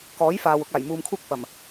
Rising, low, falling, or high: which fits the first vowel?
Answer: rising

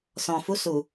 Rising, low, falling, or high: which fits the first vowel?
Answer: low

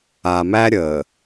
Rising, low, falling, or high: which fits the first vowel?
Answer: low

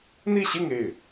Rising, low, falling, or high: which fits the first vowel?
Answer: falling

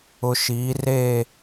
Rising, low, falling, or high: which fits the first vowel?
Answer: low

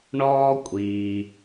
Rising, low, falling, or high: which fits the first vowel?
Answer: high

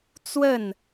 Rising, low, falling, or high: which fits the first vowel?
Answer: falling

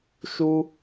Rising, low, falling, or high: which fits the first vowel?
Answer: high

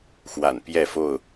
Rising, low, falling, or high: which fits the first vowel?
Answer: low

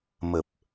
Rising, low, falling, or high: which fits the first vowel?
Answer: low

